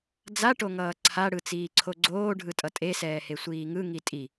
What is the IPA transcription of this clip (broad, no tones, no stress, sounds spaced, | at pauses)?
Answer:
d͡z a ʈ o ŋ ʌː ǀʰ a ɽ ɯ t͡s iː ǀʰ o ɡ͡ǀ oː ɖʱ ɯ tʼ ʌ tʼ e s ɛː h e sʷ iː ŋ ɯ ŋ i tʼ i